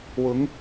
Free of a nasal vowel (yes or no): yes